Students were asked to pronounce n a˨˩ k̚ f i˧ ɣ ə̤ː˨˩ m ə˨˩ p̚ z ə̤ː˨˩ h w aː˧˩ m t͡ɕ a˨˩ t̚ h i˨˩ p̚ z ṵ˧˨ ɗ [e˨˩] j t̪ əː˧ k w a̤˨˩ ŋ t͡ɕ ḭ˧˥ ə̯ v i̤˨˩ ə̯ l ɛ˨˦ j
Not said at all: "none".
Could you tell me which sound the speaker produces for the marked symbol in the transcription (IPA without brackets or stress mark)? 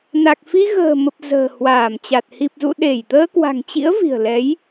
e˧˩